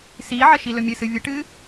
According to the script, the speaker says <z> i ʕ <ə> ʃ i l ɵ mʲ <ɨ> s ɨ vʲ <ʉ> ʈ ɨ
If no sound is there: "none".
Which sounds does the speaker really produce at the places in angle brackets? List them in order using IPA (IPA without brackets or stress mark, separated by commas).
s, ə, ɨ, ə